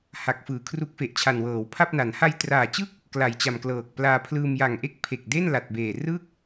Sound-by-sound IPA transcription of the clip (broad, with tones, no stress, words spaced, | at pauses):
ha˨˩k̚fɯː˩˦ kʰru˦˥k̚fe˨˩ʔt͡ɕʰa˨˩n wɤː˩˦wpʰa˥˩p̚na˩˦n ha˧jtraː˨˩t͡ɕɯ˥˩k̚ | kla˨˩jt͡ɕa˨˩mklɤː˨˩k̚plaː˧ pʰlɯː˧mja˨˩ŋʔe˥˩k̚ pʰe˨˩k̚de˥˩n la˨˩t̚beː˨˩rɯ˥˩k̚